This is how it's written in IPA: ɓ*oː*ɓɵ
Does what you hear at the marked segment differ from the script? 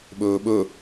yes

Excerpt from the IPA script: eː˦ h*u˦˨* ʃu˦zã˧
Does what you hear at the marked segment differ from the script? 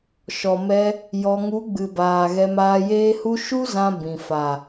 yes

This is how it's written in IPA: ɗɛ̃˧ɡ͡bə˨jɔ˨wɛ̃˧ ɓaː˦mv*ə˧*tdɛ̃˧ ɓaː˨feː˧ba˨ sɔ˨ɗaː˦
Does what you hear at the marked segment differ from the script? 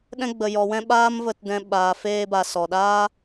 no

